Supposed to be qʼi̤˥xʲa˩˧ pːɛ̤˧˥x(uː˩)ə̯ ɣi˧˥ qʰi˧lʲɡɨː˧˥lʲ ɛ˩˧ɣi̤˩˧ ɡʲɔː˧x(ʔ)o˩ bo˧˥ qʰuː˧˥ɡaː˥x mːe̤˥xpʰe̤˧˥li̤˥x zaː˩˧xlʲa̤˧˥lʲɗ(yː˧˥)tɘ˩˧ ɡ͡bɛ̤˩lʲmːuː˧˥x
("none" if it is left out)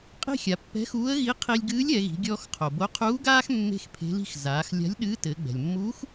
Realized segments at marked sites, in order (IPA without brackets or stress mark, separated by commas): uː˧˥, qʰ, ɨː˧˥